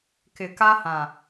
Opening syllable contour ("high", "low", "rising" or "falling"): low